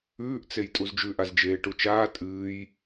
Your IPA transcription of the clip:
ʉːʔt͡sej tʼuzd͡ʒʉʔaz d͡ʒeːʈut͡ʃaː tʼɨːj

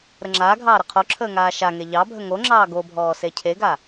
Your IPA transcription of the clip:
ɾəŋ͡ǁaːɡʱɑː ɾəqʰoǁʰəː ŋaːʃaŋe ʎɑbʱə ŋoŋ͡ǁɑː ɡobʱɔː secʰeɡa

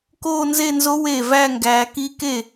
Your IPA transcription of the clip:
koː˥˧nze˥˧nzo˦˥ we˥˩ væ˥˧ŋɡæː˨˦k i˦˥ ke˥˩

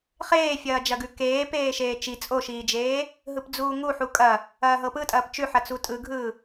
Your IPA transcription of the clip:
χeːfʲɐːd͡ʒɐɡʉ keː peːʃeːt͡ʃi t͡sʼoʃiːd͡ʒeː | ɦɯpd͡zuːŋuħu kʼɐ | ɐːɦɤpɯtʼɐːp t͡ʃʉħɐ t͡sutʼɯɡʱɯː

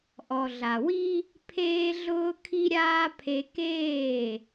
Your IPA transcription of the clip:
ʔɔ˨ɮa˨wi˦ | pʰeː˦ ɮʊː˧kʰi˧ɾʲaː˧ pʰe˧keː˦˨

